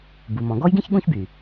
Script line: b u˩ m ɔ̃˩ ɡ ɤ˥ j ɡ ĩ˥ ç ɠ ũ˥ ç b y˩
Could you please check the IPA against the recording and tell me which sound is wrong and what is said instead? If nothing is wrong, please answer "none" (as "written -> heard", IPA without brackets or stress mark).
ɤ˥ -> ɔ˥